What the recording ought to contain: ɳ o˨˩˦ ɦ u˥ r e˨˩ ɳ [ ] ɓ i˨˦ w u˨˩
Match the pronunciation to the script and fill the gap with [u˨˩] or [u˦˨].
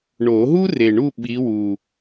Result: u˦˨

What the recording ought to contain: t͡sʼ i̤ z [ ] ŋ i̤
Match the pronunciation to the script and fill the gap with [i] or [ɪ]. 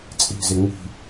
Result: ɪ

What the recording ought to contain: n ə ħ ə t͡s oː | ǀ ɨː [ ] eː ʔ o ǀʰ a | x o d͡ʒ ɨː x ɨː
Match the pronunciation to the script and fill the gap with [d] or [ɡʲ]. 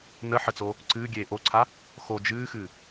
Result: ɡʲ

